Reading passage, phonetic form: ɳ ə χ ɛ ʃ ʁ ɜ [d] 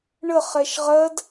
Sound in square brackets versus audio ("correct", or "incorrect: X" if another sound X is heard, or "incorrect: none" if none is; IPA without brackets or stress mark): correct